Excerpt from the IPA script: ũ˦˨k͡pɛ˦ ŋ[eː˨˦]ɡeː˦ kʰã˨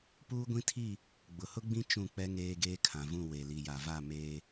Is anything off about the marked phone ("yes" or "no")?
yes